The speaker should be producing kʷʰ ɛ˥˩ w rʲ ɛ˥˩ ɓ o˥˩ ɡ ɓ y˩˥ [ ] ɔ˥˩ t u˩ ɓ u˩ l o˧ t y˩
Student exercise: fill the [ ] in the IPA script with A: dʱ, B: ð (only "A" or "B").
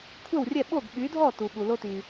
A